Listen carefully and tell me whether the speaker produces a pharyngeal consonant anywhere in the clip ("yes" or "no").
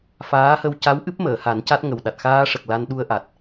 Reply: no